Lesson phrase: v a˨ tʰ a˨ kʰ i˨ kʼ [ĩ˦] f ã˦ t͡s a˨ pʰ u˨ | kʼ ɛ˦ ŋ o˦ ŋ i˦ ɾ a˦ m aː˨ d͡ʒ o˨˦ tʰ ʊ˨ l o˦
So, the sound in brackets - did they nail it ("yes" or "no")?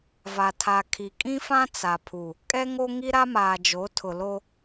yes